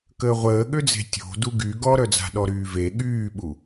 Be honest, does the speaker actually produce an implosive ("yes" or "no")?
yes